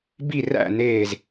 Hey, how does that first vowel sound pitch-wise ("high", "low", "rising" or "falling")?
falling